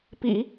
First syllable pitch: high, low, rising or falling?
low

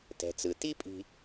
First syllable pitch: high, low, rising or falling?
low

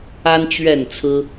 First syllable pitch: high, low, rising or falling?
high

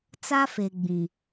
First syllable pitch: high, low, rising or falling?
high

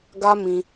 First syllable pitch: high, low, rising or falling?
high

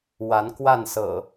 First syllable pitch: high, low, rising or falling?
rising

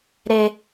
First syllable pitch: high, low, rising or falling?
high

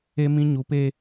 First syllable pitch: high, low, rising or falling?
high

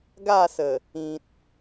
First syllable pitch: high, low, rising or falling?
falling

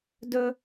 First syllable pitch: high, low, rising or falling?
high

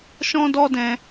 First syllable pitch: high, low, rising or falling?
high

